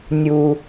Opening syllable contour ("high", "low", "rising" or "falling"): low